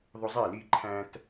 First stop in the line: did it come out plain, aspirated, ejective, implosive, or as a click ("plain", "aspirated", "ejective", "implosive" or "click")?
click